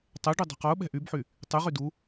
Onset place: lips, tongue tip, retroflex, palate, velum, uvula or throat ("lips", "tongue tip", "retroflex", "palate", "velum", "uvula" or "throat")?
tongue tip